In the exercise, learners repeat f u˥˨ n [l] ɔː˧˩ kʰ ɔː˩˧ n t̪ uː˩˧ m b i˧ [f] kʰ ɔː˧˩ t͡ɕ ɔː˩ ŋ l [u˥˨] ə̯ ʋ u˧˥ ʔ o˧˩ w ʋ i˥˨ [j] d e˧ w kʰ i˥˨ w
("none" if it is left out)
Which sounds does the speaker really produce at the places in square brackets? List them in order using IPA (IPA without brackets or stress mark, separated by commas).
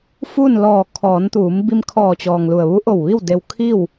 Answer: l, m, u˩, w